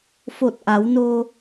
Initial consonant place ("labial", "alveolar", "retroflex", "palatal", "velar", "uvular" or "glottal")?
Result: labial